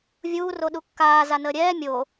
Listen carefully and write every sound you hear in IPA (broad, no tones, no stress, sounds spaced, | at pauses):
vʲ uː r o ɗ u kː aː z a n əː ɾʲ ɛː mʲ o